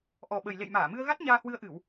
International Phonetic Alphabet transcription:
ʔ ɔ˨˩ ɓ ə˨˩ j l ḛ˧˨ j m aː˧˩ m ɨ˧ ə̯ ɣ a˦˥ t̚ ɲ aː˧ h w ɨ˧ ə̯ ʔ ɨ˧˩˨ w

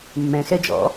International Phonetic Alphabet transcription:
mː ɛ̃ x ɛ d͡ʒ ɔ̰

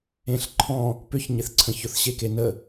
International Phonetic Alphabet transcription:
ẽ ɬ ǃʰ ɔ̃ | p ʏ ç ɲ ɪ θ ǀʰ ə̃ ç ʊ θ ɕ e k e n ə

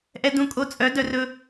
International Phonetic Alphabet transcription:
ʔ ɛ˦ d ũ˧ kʼ o˧ t͡sʼ œ˨˦ d œ˧ r ɵ˦

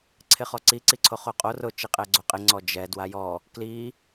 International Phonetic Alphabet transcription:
ǀʰ ɪ χ ɔ ǀ i ǀ i ǀʰ o χ o qʼ o r ʊ t͡ʃ i qʼ ɛ ɡ͡ǀ o qʼ ɪ ŋ͡ǀ ɔ d͡ʒ ɛ d w a j ɔ | k l i

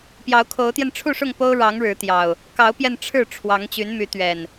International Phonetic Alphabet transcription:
p j ɑ˨˦ ʊ̯ kʰ o˨˦ ʊ̯ t̪ j ɛ˧ n ʈ͡ʂʰ u˥˨ ʂ ʊ˥˨ ŋ p o˦ ʊ̯ ɻ ɑ˨˦ ŋ ɻ ɻ̩˨˦ t̪ j ɑ˨˩ ʊ̯ | k ɑ˨˦ ʊ̯ p j ɛ˧ n ʈ͡ʂʰ ɻ̩˥˨ ʈ͡ʂʰ w ɑ˨˦ ŋ t͡ɕ y˨˦ n m y˨˦ t̪ ɥ ɛ˨˩ n

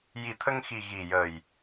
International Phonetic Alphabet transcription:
j i˨˩ t̪ʰ ə˧ ŋ x i˨˩ ɣ i˨˩ j ə˨˩ j

